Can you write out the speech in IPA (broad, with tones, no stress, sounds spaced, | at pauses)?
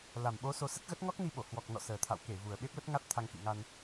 l a˨˩ m ɓ o˨˦ s o˧ s ə˦˥ t̚ ɣ ə˦˥ t̚ ŋ ɔ˦˥ k̚ n i˧ ɓ o˧˩ h w ɔ˨˩ k̚ n ɔ̰˧˨ s əː˨˩ t̪ʰ a̰˧˨ w k e˧˩ v u˨˩ ə̯ ɓ e˦˥ p̚ l ə˦˥ t̚ ŋ a˦˥ t̚ t̪ʰ a˧ ŋ k ḭ˧˨ ŋ a˧ n